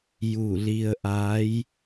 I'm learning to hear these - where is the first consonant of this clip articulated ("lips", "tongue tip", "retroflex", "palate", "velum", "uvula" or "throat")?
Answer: palate